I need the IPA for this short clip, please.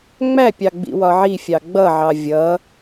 ŋ͡m æ pʲ ɑ ɡ͡b ḭ w ɒ ʕ i fʲ ɑ ɡ͡b ʌ ʕ ɑ vʲ ʌ

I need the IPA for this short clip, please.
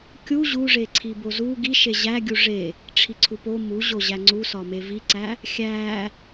kʲ u ʑ u ʐ e ǀʰ i b o z u ɡ i ʃ e ʑ æ ɡʲ u ʐ e | ʈ͡ʂʰ i ǀʰ u p o m u ʑ o ʑ æ ŋ͡ǀ u s ɒ m e v i ǀ æ | xʲ æ

